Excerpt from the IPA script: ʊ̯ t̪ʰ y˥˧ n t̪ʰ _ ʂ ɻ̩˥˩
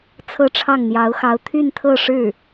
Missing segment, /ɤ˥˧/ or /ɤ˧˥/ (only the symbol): ɤ˥˧